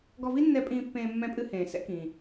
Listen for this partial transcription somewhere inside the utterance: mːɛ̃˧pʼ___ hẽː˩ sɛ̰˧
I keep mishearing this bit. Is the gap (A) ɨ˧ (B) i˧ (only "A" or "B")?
A